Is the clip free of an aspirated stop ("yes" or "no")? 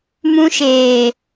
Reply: yes